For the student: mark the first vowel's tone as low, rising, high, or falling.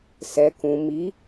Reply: low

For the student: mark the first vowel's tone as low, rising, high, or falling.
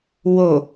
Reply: low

